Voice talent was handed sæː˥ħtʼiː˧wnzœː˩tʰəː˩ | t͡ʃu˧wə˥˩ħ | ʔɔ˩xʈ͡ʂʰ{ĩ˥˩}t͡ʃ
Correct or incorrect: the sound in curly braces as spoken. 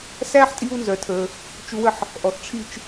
incorrect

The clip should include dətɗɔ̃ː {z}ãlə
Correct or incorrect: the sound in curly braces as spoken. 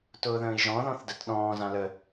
correct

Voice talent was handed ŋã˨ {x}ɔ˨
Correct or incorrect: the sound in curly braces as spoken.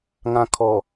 incorrect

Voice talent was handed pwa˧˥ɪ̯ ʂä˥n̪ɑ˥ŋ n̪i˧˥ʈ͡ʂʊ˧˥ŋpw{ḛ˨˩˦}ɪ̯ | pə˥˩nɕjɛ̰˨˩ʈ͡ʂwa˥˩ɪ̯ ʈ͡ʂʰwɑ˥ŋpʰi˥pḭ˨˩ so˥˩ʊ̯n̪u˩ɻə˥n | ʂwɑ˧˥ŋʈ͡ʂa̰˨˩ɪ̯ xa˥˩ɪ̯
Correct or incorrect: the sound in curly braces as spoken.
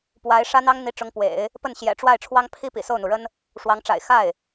correct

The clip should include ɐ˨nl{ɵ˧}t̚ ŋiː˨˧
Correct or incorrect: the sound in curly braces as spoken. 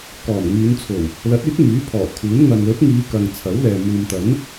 incorrect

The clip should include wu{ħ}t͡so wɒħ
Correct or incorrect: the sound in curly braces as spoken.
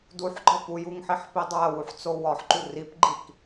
correct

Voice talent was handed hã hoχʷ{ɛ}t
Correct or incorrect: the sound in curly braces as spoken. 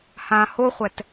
correct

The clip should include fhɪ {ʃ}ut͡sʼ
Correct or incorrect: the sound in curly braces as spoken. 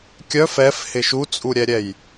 correct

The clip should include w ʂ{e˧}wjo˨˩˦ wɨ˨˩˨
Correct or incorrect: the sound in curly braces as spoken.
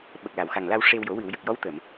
correct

